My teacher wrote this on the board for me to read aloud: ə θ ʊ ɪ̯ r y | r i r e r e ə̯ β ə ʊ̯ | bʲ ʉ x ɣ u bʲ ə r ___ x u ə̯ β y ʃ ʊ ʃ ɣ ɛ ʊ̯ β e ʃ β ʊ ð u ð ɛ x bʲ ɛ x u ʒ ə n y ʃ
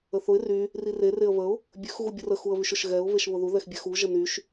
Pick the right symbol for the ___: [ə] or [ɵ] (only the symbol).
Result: ə